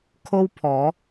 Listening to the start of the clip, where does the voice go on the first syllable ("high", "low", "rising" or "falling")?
high